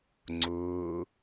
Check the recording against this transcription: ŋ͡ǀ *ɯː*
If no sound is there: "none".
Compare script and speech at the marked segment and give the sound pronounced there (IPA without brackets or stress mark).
ʊː